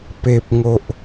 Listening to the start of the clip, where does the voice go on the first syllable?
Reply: low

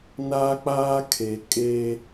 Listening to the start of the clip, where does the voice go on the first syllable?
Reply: high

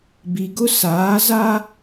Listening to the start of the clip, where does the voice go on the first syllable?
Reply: low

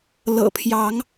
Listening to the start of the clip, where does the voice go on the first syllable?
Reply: low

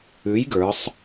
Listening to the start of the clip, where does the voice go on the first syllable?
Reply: rising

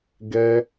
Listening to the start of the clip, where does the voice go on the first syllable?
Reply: high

